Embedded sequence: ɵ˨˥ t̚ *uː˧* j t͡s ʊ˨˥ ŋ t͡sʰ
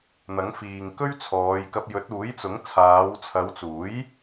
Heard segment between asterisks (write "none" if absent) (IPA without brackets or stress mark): uː˨˥